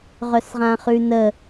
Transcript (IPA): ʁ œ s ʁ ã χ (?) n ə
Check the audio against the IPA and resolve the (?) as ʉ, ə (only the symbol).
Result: ʉ